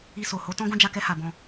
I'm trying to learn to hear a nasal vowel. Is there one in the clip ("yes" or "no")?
yes